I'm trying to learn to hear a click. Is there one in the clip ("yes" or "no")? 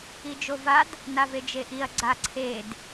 yes